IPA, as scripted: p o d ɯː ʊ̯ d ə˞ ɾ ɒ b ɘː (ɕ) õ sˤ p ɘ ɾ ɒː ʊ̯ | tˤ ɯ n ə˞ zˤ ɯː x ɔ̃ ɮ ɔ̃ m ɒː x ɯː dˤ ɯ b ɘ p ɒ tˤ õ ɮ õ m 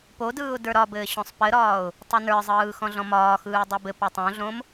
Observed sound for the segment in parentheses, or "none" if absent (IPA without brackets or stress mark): ɕ